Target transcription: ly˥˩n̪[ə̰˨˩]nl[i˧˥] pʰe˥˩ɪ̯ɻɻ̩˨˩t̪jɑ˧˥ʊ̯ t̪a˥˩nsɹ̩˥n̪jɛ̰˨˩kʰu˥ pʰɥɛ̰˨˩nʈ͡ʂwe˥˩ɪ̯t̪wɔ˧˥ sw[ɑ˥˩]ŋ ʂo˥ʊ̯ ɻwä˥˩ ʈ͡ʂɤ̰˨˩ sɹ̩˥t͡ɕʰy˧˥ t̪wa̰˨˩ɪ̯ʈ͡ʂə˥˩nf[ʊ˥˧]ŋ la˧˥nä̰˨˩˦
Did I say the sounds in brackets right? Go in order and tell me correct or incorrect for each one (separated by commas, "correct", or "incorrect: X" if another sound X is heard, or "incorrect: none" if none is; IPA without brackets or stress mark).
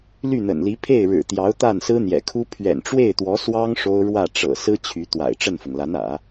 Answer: correct, correct, incorrect: ɑ˥, incorrect: ʊ˩